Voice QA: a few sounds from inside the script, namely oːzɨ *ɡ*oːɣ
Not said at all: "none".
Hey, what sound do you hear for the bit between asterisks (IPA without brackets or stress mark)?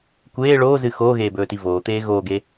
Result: x